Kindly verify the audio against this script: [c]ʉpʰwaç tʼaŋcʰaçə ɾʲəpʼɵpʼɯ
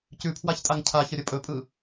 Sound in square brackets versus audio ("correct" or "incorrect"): correct